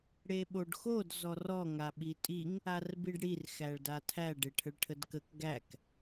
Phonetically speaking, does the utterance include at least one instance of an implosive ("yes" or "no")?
yes